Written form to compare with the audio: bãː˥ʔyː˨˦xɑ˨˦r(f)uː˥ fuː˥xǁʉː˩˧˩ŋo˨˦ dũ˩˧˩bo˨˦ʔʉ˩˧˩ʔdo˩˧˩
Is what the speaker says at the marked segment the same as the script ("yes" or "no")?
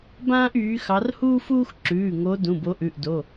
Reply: no